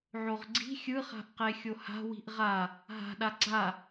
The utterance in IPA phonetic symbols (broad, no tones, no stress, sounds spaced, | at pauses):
ʕ o ʁ ɡ͡ǀ i̤ xʲ ɯ χ a̤ ʔ q e xʲ o h a̤ w i̤ ʔ ʁ a | ɦ a̤ ɗ a ɡ͡ǀ a